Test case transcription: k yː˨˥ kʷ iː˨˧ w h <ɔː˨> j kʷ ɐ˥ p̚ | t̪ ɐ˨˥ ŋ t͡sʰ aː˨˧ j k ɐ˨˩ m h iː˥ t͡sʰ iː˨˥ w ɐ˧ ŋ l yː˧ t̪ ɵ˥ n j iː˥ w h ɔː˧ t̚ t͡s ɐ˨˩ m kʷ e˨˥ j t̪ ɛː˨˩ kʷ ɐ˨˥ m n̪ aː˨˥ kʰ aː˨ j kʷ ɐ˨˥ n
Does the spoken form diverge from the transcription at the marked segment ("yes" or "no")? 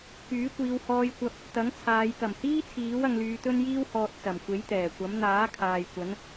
yes